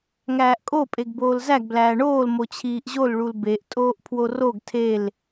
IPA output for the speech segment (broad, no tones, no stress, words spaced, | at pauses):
ŋæːʔkʼo pʼeɡboːlzæɡ blæːɳoːl mot͡ɕʰiːʔʑol ɭulbeʔ tʼoːʔpʰworoɡ tʰel